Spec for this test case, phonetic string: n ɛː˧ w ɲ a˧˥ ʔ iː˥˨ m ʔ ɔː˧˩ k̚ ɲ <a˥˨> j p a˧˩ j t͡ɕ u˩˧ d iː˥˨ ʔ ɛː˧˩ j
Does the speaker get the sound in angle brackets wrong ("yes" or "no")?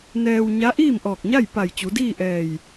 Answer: no